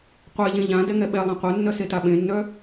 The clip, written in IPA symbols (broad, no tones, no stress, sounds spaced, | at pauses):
qʷ e ʎ ẽ ʎ ã d ɛ ŋ ɛ ɓ ɛ lˠ ɛ̃ qʷ œ nː œ s e t a ɓ ẽ nː œ